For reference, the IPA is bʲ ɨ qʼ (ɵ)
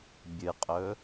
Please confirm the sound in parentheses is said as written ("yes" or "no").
yes